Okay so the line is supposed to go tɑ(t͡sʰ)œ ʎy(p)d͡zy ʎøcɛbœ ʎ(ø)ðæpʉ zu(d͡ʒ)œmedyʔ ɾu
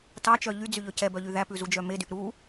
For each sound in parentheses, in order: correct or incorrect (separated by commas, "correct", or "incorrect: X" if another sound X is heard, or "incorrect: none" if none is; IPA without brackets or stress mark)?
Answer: incorrect: t͡ʃ, incorrect: none, incorrect: y, correct